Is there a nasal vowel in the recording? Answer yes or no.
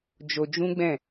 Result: yes